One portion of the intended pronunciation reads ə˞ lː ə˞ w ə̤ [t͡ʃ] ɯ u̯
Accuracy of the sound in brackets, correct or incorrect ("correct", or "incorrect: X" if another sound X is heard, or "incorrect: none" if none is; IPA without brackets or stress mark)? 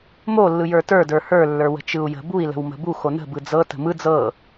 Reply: correct